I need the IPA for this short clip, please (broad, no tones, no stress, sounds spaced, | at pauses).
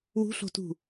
w ṳ ɬ o̤ t ṳ